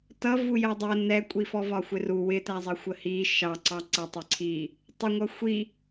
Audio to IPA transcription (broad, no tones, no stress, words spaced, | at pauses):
tʌ vujɜdˤɜ nɛkʷʼi fɔvɒxʷɪru wɪtæzˤɜ xʷəhi ʃɑ ǀɑǀɜtˤɪǀʰi | tˤəŋʷʌ xʷi